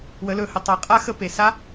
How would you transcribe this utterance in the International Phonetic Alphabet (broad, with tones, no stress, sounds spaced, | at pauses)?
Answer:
w ə˩˧ l ɵ˩˧ h ə˩ tˤ ɛ˩˧ qʼ a˧˥ x ə˧˥ p e˩ s a˧˥